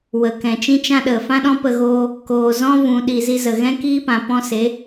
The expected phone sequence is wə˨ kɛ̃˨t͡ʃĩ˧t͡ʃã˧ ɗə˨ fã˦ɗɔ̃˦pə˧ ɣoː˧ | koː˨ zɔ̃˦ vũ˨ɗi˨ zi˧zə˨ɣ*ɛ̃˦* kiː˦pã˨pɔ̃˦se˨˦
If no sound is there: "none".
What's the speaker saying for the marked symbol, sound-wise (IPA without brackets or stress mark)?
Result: ɛ̃˦